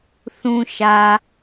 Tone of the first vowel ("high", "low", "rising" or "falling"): low